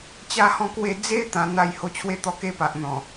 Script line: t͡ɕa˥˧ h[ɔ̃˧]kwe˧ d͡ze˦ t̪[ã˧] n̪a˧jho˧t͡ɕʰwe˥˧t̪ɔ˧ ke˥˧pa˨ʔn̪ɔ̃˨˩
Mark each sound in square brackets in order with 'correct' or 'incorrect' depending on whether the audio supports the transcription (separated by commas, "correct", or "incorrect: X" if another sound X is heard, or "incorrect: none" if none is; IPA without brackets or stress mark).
correct, correct